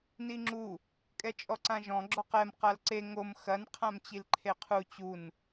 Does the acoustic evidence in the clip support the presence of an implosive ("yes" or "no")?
no